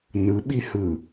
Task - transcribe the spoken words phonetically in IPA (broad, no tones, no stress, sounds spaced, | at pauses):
n ɯ ɓ i h ɯ